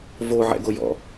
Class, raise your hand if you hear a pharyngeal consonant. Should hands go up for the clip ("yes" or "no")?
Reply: yes